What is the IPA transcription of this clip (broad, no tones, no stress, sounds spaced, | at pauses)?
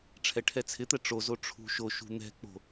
ʈ͡ʂʰ ɛ ʈʰ ɛ t͡sʰ ɪ t̪ ɛ ʈ͡ʂ o z o ʈ͡ʂʰ ṳ ʃ o ʃ ṳ n̪ ɛ̤ k͡p o̤